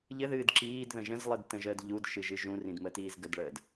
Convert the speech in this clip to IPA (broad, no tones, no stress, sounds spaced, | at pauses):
ʎ ɘ ð ɨː d ǁ iː d ð ə̃ ʒ ə̃ z lˠ ɨ d t ə̃ ʒ əː d ʎ u d ʃ ɨ ʒ ɨ ʒ ũ r ĩ d m ə t iː z ɡ ə d ɭ əː d